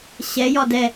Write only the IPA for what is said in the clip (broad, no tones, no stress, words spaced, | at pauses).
ɕɛjɒ dɛ